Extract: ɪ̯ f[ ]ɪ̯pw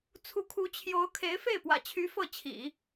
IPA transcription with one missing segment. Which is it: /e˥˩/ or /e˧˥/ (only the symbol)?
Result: e˥˩